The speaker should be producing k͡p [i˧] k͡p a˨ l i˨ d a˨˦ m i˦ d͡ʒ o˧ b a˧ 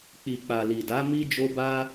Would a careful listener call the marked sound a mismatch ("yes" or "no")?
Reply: yes